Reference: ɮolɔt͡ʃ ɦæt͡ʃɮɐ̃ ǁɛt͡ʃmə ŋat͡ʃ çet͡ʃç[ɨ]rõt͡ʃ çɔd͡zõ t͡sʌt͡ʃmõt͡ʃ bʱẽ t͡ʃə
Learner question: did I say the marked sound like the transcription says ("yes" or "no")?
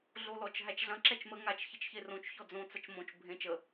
no